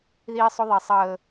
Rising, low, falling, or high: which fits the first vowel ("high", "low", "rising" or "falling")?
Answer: high